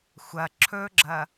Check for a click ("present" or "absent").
present